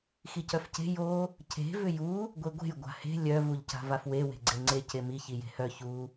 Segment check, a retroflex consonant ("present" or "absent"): absent